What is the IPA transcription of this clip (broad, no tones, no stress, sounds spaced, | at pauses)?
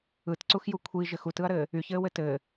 ɯ t ǀ u x j u kʷʰ i ʒ ɘ x u t ɯ ɐ̯ ɾ ɘː | y ç ɘː w ɘ t ɘː